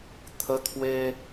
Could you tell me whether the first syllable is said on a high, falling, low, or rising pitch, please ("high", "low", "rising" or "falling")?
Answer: high